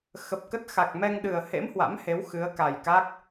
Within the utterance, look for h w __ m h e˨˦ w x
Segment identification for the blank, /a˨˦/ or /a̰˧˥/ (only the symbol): a̰˧˥